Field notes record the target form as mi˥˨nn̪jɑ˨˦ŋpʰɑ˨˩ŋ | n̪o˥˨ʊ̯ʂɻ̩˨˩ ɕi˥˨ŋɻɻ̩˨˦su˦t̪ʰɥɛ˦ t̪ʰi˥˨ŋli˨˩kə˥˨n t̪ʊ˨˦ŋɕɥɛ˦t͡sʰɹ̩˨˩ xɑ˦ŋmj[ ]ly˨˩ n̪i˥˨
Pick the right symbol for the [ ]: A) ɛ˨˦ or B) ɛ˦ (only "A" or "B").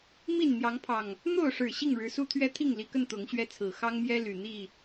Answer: B